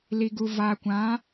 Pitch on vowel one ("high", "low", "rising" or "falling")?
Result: low